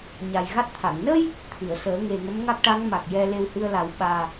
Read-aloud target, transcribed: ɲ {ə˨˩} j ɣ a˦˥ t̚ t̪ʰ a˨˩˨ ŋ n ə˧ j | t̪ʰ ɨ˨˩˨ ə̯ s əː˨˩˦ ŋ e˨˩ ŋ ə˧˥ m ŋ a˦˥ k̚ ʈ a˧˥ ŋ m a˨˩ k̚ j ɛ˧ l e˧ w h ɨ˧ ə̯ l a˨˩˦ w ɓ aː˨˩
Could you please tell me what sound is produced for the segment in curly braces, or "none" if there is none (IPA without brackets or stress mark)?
a˨˩